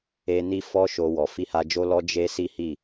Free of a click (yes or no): yes